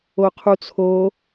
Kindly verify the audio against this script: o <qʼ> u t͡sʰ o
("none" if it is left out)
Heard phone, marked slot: qʰ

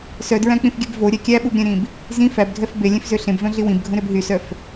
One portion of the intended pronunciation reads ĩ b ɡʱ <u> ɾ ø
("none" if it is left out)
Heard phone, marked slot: ũ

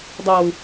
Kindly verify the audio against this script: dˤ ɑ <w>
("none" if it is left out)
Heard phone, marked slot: w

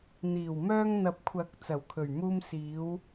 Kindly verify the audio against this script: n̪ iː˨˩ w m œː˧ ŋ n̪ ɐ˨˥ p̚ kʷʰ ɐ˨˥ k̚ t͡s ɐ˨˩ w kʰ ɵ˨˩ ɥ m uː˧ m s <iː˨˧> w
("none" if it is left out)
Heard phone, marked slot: iː˨˧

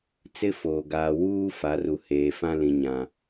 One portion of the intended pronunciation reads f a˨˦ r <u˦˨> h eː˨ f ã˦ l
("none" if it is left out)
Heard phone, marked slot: u˨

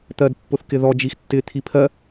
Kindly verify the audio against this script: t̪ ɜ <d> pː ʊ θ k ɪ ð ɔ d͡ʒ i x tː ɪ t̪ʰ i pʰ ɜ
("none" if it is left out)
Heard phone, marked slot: d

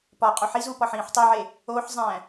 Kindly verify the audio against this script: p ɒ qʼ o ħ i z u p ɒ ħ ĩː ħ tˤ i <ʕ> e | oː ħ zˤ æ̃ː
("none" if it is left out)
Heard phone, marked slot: ʕ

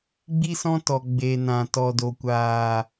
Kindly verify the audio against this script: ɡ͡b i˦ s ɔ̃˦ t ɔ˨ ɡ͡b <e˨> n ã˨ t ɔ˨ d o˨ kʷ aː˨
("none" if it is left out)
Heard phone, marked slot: e˨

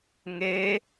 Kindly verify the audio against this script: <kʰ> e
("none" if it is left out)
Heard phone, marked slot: ŋ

